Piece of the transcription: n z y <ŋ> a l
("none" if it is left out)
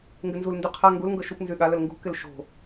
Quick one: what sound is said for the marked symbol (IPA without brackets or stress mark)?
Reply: ɠ